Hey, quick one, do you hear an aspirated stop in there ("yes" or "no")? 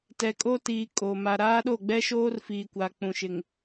no